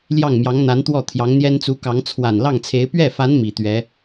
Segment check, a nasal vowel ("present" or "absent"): absent